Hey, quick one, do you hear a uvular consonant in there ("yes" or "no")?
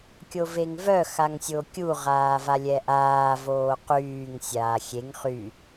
yes